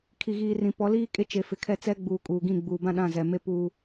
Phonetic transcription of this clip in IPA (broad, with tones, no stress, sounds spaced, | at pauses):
kʰ i˨ ɣ iː˨ r ĩ˨ p ɔ˨˦ l iː˦ kʼ e˦ t͡ʃ e˨ f ɪ˨ kʰ ɛ˦˨ t͡s ɛ˦ ɡ͡b uː˨ kʼ uː˨ ɡ ĩ˦˨ ɡ͡b uː˨ b ã˦ ɗ ã˦˨ z ɛ˨ m e˦ p uː˦